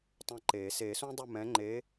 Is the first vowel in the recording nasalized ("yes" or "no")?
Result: yes